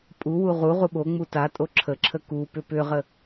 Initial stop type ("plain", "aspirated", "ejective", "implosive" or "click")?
ejective